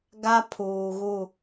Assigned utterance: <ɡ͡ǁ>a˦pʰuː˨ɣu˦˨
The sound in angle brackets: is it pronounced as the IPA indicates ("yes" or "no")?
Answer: no